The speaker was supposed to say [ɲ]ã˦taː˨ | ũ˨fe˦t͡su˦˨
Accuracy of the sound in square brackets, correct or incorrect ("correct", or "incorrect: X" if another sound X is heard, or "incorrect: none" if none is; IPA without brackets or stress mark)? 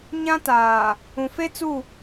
correct